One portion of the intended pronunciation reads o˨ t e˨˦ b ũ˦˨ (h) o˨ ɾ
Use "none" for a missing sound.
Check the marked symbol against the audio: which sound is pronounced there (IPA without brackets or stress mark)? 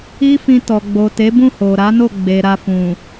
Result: h